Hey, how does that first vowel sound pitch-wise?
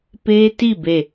high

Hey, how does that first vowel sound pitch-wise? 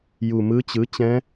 low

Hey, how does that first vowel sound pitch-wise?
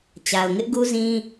low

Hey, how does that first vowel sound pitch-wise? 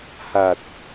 low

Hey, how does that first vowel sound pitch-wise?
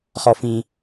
low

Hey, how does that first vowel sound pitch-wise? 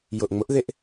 low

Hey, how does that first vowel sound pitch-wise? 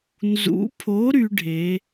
rising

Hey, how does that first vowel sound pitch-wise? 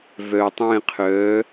low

